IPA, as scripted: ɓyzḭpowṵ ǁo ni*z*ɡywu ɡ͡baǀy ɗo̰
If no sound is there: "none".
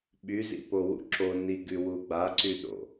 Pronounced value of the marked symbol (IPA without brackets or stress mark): none